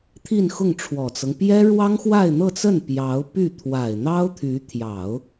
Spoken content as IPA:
t̪ʰ i˥˧ n x ʊ˥˩ ŋ ʈ͡ʂʰ w ɔ˨˩ t͡s ɤ˦ ŋ p j ɛ˥ ɻ w ɑ˥ ŋ x w a˥˧ ɪ̯ n̪ ɤ˥˧ t͡s ə˥˩ n p j ɑ˧˥ ʊ̯ p y˥˩ t̪ʰ w a˨˩ ɪ̯ n̪ ɑ˥ ʊ̯ t̪ʰ y˧˥ t̪ʰ j ɑ˨˩˦ ʊ̯

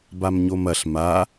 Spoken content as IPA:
b a m ɲ o m ɐ ɬ m a

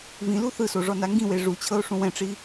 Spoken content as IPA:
v ĩ l u θ ɯ s o ʐ ɔ n a ŋ ɡ ĩ w e ʐ u t͡ɕʰ ɤ o̯ ʂ ũ w ɛ̃ ʈ͡ʂ i

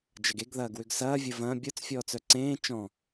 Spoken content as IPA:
d͡ʒ ɐ ɡ e ɡ ð ɐː ɡ w ʏ ɡ s ɐː vʲ ə v ɐ̃ bʲ ʊ t͡s fʲ ɔː t͡s œ ǀ ẽː t͡ʃ ɔ̃

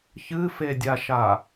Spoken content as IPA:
ç ɨ f e dʲ a ʃ a

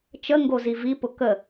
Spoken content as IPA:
t͡ʃ ə ŋ ɡ o z i v i p ʊ k ə

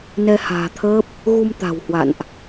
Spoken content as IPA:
n ɛ˧ h a̤ː˨˩ t̪ʰ əː˦˥ p̚ | ɣ u˧ m t̪ a̤˨˩ w h w a̰˧˨ n ʔ

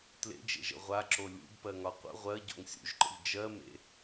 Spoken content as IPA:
t l ḛ d͡ʒ ḛ ʒ ə̰ ʁʷ a ǁ o lʲ ṵ b p ɜ ŋ ɒ qʷ ə̰ ʁʷ ɜ ɟ o̰ ŋ sʲ ṵ ʒ ǃ ə̰ ʎ d͡ʒ ɜ m ḛ

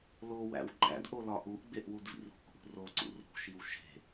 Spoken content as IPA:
l o w æ̰ w ɡ͡ǃ æ̰ d ʔ o l ɒ ʔ u ʔ ɡ͡b e ʔ w u d v ḭ r ṳ k ʔ ṳ r o ǀ ṵ r ṳ ʃ i w ʃ e̤

